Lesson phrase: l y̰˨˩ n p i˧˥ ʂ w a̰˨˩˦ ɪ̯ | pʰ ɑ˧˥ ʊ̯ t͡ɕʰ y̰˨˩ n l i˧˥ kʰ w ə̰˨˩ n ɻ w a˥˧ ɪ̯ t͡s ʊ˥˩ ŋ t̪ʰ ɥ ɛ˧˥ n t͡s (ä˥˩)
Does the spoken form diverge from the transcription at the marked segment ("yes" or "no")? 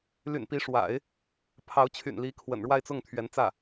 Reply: no